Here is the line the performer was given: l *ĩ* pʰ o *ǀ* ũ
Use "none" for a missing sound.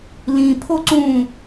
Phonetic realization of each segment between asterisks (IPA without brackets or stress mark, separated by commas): ĩ, ǀ